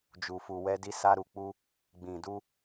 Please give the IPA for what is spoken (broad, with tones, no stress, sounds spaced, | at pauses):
d͡ʒ u˨ f u˨ w ɛ˧ d i˧ s a˧ ɾ u˨ k͡p u˧ | ɡ͡b ĩ˨ d u˧